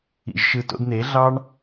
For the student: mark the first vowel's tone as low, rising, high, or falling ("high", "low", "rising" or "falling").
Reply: low